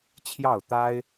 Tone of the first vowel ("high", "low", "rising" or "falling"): falling